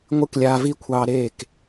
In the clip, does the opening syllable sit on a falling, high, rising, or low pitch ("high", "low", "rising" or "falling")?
falling